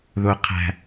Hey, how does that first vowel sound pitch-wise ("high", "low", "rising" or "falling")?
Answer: high